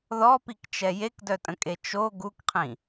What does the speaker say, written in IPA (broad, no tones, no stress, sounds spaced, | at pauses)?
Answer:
ð ɔ p i k t͡ʃ ɛ j e k d œ tʼ ə̃ kʼ e t͡ʃ o ɡ u k qʰ ĩ